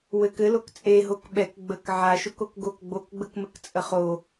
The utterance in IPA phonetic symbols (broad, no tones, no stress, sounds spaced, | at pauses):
w ɘ k ɘ l o k t͡sʼ e ɦ o k ɓ ɛ k ɡ͡b ə k ʕ a ʃ o k o k ɡ o k ɡ͡b o k ɡ͡b ə k m ɘ k t͡sʼ ə χ o